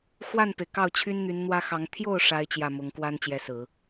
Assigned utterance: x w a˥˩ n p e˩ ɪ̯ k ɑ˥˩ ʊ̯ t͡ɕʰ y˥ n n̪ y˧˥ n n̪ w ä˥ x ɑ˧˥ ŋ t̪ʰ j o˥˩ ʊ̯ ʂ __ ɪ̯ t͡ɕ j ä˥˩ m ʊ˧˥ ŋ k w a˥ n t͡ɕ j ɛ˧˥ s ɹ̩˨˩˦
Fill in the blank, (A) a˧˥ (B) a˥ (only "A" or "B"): B